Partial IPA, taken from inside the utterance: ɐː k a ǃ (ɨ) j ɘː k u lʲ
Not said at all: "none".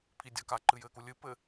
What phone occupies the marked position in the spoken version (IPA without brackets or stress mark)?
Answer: ɨ